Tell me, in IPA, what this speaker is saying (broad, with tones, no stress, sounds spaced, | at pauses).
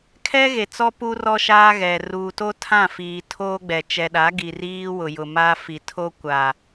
kʰ ɛ˦ ɣ e˨ t͡s ɔ˦ p u˦ r ɔ˦ ʃ aː˦ ɣ ɛ˨ r uː˨ t o˦ tʰ ã˦˨ f iː˨ tʰ oː˦ ɡ͡b ɛ˨ t͡ʃ ɛ˨ ɗ a˨˦ ɡ i˨ r iː˦ w ʊ˨ j ʊ˨ m a˦ f i˨ tʰ o˦ kʷ a˨